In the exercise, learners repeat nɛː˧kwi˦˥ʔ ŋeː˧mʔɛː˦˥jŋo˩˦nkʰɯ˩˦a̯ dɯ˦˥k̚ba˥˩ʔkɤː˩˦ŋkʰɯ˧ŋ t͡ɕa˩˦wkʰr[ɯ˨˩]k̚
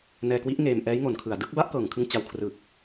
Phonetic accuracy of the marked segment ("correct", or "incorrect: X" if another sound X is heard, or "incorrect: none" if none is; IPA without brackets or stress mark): correct